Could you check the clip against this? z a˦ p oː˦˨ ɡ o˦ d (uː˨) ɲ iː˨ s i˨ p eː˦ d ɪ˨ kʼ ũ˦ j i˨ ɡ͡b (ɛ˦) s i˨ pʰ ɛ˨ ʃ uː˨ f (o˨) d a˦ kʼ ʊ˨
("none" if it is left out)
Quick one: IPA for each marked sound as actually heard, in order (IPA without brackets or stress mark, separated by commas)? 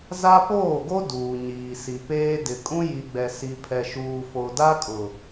uː˨, ɛ˨, o˨